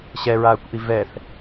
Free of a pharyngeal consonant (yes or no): yes